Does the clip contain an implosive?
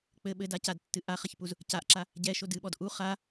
yes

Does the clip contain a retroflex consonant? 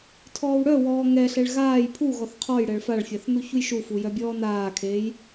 yes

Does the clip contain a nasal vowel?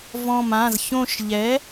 yes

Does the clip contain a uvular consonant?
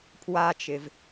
no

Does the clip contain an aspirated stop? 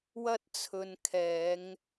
yes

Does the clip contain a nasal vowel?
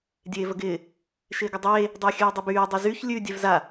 no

